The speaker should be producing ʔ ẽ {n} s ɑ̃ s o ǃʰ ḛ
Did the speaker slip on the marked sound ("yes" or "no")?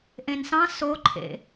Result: no